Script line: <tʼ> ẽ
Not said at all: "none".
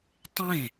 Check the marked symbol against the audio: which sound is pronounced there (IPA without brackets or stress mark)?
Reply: tˤ